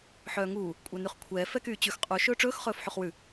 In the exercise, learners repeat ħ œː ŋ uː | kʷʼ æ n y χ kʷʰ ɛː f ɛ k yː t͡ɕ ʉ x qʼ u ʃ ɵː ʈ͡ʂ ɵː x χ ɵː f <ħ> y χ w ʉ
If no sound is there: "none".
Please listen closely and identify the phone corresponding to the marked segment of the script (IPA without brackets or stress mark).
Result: ħ